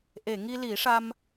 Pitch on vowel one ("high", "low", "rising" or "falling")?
low